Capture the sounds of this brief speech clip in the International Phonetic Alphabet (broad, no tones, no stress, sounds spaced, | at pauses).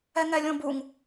ɛ ŋ ɛ lʲ õ b u ŋ